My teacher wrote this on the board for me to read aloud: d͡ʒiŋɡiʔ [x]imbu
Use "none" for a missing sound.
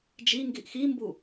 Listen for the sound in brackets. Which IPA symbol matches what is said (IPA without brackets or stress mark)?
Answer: x